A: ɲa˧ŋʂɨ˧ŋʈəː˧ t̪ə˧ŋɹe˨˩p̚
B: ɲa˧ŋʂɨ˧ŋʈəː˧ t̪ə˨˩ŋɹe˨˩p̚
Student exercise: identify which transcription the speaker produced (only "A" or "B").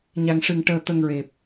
A